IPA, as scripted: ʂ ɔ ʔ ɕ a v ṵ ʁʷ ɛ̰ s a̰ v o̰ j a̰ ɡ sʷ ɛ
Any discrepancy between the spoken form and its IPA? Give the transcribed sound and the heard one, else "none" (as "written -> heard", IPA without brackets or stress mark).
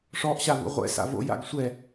none